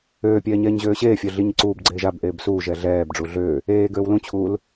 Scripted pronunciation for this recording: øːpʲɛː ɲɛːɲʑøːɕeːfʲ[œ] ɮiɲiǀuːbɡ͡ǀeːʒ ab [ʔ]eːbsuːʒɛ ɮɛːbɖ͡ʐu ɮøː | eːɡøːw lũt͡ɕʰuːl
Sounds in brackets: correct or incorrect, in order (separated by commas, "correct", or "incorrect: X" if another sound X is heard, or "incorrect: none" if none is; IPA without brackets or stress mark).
correct, correct